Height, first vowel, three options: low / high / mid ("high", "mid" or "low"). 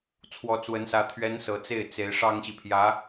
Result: mid